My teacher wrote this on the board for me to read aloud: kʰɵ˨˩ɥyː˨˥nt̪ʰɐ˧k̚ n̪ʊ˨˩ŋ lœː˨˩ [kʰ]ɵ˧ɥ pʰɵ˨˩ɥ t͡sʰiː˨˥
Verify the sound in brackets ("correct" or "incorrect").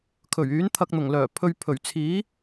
incorrect